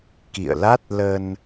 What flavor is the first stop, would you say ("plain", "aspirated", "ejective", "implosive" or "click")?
plain